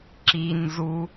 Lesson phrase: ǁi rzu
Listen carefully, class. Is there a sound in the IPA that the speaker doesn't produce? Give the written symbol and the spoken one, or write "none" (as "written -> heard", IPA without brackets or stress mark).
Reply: r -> n